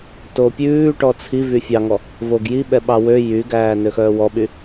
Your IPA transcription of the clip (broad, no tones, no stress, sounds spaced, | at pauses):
t o pʲ ʉː ʈ ɔ t͡sʰ i v y fʲ ɑ ŋ ɔ | v o ɡ j i ɓ ɛ ɓ ɑ w ø j y ɡ æː n ø x œː w ɔ ɓ y